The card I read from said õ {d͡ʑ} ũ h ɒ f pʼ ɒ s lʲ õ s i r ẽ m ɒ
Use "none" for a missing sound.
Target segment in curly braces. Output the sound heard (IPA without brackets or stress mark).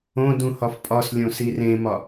d